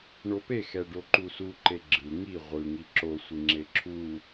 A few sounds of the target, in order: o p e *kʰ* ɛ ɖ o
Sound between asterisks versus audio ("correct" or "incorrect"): incorrect